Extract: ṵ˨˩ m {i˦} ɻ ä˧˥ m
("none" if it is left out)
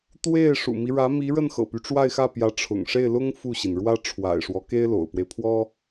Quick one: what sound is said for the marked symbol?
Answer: i˦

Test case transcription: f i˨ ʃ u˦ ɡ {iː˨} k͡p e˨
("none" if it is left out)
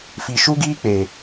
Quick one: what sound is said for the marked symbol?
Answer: iː˦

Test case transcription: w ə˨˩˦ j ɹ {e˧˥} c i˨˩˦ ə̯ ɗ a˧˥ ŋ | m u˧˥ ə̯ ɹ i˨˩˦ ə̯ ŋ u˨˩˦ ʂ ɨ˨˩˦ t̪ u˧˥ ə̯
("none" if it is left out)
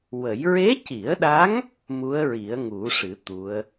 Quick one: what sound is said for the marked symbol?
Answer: e˧˥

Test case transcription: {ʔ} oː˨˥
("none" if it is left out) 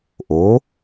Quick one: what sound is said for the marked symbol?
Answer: ʔ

